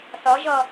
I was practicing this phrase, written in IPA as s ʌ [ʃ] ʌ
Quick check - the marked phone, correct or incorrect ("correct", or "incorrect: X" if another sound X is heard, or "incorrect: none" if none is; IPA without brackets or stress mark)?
incorrect: ʒ